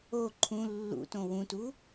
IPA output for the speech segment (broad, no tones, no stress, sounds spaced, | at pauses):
o ǃʰ ũ lː ṵ t õ w ũ t u